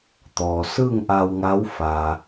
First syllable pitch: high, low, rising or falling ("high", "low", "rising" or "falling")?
low